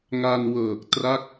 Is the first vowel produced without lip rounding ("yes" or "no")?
yes